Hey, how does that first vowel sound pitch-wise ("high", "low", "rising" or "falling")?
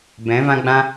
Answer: rising